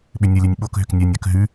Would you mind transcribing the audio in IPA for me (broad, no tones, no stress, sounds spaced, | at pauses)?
ɓ ʏ nʲ ə lʲ œ nʲ ɓ o k ɦ ʏ k nʲ œ nʲ œ k ɦ ʉ